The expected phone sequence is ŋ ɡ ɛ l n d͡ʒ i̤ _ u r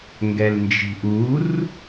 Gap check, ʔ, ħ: ʔ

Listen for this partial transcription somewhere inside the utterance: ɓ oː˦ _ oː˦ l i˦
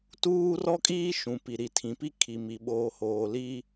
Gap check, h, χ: h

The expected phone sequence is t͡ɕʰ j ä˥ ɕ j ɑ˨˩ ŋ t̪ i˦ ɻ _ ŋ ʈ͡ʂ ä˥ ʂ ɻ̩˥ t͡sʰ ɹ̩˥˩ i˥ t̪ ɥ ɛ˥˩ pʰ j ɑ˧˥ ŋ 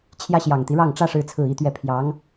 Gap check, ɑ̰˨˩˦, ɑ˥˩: ɑ˥˩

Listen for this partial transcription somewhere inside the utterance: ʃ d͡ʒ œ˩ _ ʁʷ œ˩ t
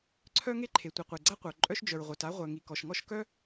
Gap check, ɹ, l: ɹ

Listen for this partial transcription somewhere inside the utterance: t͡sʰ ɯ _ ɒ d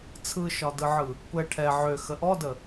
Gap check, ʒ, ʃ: ʃ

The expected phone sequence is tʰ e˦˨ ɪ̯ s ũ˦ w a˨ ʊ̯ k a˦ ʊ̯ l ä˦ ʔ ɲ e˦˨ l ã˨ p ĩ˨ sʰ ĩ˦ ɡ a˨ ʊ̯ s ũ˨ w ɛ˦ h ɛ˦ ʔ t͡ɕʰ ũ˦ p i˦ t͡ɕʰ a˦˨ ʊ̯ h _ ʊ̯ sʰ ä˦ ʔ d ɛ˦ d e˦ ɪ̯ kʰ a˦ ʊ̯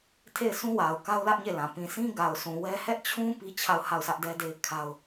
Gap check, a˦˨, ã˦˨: a˦˨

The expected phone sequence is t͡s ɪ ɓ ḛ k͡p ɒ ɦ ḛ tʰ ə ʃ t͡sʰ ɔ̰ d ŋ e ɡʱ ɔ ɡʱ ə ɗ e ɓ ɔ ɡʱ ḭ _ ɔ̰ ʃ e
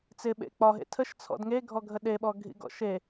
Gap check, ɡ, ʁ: ɡ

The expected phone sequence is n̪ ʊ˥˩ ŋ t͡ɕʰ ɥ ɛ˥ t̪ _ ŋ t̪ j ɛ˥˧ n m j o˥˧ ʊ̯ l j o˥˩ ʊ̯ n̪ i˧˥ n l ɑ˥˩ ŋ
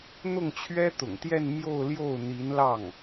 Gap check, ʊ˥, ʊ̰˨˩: ʊ̰˨˩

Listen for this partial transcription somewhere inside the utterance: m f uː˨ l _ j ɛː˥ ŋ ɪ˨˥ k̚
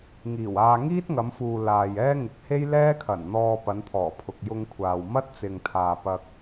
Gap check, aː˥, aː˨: aː˨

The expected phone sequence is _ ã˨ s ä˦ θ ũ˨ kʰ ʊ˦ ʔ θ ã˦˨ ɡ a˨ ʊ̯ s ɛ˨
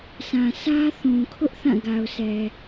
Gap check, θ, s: s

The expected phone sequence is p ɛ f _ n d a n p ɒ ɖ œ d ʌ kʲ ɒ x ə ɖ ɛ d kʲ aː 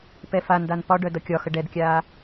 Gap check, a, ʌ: a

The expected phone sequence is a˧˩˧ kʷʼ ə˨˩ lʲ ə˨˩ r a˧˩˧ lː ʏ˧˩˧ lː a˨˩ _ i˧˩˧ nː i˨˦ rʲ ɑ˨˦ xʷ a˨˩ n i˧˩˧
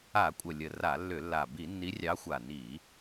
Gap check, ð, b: b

